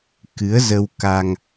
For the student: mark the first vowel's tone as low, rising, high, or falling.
rising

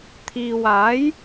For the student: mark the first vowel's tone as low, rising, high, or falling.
low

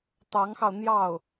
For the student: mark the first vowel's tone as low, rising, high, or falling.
rising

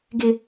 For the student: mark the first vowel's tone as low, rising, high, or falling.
high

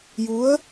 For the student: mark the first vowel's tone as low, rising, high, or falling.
rising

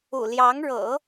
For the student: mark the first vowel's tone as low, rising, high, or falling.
low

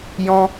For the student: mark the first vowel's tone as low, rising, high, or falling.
high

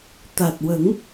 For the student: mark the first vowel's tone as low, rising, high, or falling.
low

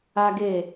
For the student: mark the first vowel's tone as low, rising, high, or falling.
high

